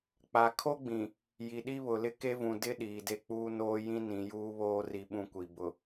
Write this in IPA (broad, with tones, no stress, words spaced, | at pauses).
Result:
k͡pa˨kʰo˦ɡ͡bĩ˨ | ji˨ɗi˦βʊ˨lɪ˦ ke˦vũ˨ dɪ˦ ɗiː˨de˦k͡puː˦noː˦ jĩ˦nĩ˨juː˦βoː˦ ri˦ɓũ˦kʷi˨ bʊ˨